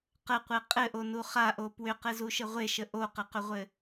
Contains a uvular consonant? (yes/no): yes